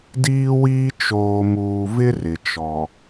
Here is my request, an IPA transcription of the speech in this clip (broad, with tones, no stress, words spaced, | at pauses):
diː˦wiː˦ t͡ʃoː˨muː˨vɪ˦ rɪ˨t͡ʃɔ˨